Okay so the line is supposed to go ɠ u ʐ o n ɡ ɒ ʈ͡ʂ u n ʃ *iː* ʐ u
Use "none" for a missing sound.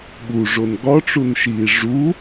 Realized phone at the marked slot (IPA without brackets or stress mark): iː